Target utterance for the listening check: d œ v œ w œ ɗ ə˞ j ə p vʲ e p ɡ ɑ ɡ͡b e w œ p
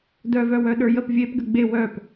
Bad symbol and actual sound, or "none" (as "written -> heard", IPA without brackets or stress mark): ɑ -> ə